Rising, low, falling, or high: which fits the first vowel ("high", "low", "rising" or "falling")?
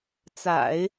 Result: low